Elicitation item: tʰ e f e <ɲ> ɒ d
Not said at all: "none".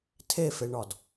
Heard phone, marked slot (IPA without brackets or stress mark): ɳ